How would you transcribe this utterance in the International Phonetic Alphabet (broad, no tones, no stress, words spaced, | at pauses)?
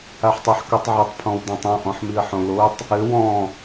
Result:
aħtˤaħkotˤʕɘtˤ pʰɔ̃wdãtˤɔ̃ ʔɔ̃ħmiə̯ħõlotˤ | ɘ wɔ̃